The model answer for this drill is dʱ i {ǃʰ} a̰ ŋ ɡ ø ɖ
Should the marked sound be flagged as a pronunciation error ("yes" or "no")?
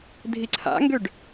yes